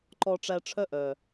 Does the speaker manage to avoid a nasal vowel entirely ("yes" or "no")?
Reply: yes